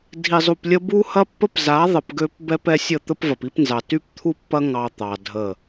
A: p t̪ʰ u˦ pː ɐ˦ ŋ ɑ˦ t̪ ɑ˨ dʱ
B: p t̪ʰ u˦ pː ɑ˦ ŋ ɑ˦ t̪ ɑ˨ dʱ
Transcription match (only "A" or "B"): A